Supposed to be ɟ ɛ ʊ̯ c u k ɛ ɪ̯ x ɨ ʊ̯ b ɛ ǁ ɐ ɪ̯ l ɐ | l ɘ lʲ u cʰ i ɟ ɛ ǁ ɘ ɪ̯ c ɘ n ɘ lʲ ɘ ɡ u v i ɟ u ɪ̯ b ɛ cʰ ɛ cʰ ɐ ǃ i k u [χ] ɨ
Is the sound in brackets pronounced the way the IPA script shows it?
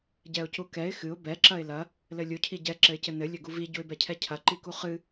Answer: yes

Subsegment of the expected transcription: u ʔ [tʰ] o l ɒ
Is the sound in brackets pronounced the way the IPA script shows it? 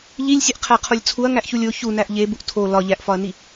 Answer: yes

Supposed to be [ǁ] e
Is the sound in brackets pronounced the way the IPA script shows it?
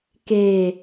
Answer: no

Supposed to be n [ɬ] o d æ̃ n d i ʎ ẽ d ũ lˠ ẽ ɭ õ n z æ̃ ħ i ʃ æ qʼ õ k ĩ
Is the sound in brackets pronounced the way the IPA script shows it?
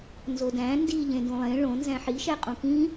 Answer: no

